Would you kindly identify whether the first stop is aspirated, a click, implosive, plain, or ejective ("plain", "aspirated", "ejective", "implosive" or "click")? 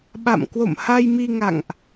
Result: implosive